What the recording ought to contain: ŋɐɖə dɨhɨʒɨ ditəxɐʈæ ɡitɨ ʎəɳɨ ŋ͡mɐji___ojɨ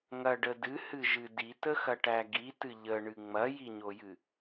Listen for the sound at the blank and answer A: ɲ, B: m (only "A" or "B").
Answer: A